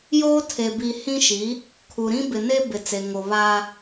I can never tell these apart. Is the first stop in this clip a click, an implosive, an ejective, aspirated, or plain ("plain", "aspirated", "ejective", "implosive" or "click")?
aspirated